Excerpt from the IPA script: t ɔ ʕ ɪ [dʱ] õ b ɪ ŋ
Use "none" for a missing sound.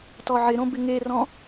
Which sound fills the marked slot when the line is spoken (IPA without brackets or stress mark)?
ɾ